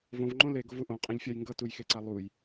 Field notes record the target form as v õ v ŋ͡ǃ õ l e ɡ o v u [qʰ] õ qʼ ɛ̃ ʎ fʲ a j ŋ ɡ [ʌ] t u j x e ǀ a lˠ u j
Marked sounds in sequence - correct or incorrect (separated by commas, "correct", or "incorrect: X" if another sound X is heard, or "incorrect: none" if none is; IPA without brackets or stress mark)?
incorrect: ʔ, correct